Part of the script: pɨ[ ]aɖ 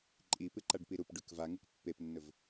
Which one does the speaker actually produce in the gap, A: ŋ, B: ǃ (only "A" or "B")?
B